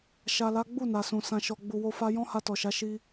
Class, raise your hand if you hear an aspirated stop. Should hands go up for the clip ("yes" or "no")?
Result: no